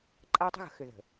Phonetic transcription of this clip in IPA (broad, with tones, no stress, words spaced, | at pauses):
ǃʼa˦wtˤə̤˦ɣə̤˨xʏ˨ ðə̤˨